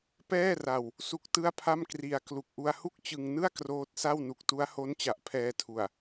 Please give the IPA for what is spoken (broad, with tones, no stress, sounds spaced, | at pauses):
p ɛː˥˩ r a˧ w | s u˥˩ k̚ t ɯ˥˩ a̯ pʰ a˥˩ m k r i˧ a̯ k l u˨˩ k̚ ʔ u˧ a̯ h u˥˩ k̚ t͡ɕ ɯ˧ ŋ n ɯ˥˩ a̯ k r oː˦˥ t̚ s a˥˩ w n u˨˩ k̚ t u˦˥ a̯ h o˦˥ n t͡ɕ a˨˩ ʔ pʰ ɛː˧ tʰ u˨˩ a̯